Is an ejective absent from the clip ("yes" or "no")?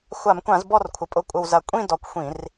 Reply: no